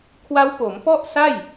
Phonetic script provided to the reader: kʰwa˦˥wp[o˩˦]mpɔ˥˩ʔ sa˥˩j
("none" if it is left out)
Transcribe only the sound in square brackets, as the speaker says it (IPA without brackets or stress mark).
o˩˦